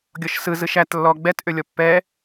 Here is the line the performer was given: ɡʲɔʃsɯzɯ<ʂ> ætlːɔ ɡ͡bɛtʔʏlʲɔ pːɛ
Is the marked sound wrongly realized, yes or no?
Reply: yes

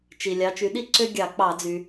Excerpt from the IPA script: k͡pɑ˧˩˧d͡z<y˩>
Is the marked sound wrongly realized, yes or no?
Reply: no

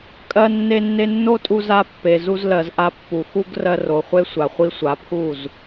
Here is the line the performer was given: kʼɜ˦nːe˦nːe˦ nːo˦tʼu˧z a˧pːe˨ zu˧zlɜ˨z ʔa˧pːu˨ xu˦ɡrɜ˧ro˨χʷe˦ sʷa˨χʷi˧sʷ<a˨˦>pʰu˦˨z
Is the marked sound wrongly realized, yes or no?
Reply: no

